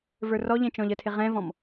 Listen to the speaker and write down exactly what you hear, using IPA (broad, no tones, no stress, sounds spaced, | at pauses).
v ə˞ r ɔ ʎ ɛ̃ t͡ʃ ɔ̃ ʎ ə tʰ ɪ ʁ ɛ̃ v ɔ̃ m